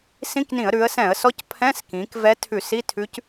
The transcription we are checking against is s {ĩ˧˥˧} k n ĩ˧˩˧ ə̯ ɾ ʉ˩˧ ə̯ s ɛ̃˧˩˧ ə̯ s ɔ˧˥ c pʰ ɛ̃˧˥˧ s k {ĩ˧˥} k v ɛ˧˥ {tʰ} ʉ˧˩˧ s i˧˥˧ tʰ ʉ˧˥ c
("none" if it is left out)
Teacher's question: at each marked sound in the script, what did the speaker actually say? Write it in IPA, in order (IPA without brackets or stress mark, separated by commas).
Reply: ĩ˧˥˧, ĩ˩˧, tʰ